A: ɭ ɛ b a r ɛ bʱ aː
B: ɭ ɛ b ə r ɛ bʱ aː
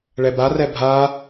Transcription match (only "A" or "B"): A